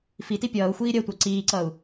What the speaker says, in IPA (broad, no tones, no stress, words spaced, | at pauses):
fiti pʲʌːu̯ xʷiːɾʲɜtʷɑ ǀiːǀʌːu̯